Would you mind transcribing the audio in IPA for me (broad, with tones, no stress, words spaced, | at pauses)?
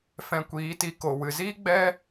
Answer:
fɛ̃˧kʷiː˨˦ti˧ ko˨ wɨ˨ziː˦ ɡ͡bɛ˦